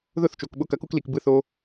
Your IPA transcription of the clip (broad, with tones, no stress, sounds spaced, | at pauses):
ð ʊ˦˨ θ t͡ʃ o˨ k ɓ ʊ˧ k ɐ˨˦ k u˧ k l i˨ k b ɯ˧ θ o˧